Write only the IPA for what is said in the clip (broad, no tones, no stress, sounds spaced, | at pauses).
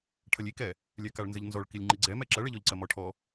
ʈʰ ɐ lʲ i k ɛ | lʲ ɛ k a ɭ n z ɘ ʎ n z ɔ ɭ k i lʲ ŋ͡ǃ i ɡ͡ǀ ɛ m ɛ ǁ ɐ ɭ ɛ ʎ ɔ ʎ ǀ ɐ m ɔ ʈʰ ɔ